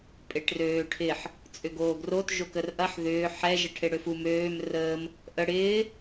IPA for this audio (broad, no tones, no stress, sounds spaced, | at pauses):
pʼ e ʈ r øː ʈʰ ɪ ħ | t͡sʼ ʏ ɡ oː ɡ r o t ʒ o k ə r ʔ ɐ ħ ð ʏː ħ ɛ ʒ ɛ ʈʰ e ɽ ø f u m øː m r əː m | ʔ ə ɽ ɪː